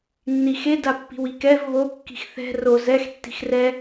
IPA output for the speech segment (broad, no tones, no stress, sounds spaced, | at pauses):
nː i x e d a pː i̤ w i k ɛ v β o kː i̤ x θ ɛ̤ r o z ɛ x tː i̤ x r ɛ